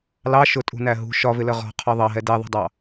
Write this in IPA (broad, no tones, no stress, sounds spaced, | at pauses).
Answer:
l ɑ ʃ ʊ tʼ ṳ n æ ɦ ṳ ʃ ɒ v ɪ l ə ʁ ɔ̤ qʰ ɒ ðˤ ɑ ɦ ɛ d ɛ ðˤ ṳ dˤ ɑ